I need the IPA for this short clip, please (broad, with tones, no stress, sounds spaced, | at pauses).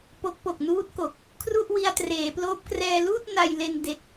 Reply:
p o˦˥ k̚ p o˨˩ k̚ n uː˦˥ t̚ k o˨˩ k̚ | kʰ r u˥˩ ʔ w i˧ a̯ t r eː˩˦ p l oː˦˥ p̚ k r ɛː˧ l uː˥˩ t̚ n a˧ j l e˧ n d e˦˥ k̚